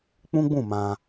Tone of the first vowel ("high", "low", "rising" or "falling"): high